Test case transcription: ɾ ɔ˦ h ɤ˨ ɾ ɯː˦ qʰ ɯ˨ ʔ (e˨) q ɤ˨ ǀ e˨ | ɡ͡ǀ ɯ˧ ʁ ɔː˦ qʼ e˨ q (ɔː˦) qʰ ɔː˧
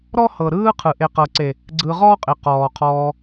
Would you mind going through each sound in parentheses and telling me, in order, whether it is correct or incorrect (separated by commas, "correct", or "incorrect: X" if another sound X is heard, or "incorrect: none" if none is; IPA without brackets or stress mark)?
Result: correct, incorrect: ɔː˨